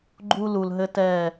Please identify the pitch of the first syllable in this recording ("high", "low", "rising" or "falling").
high